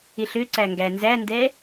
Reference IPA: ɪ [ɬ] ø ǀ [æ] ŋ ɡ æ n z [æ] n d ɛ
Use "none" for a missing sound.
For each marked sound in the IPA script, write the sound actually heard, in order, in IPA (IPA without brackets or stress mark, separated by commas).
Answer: ɬ, æ, æ